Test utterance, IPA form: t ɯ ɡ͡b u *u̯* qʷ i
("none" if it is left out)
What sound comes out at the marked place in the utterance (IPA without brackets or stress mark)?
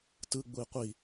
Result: i̯